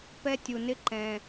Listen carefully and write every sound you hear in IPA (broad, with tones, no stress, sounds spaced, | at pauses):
p ɛ˦ tʲ u˨ n ɪ˦ ǃ ɛ̃˨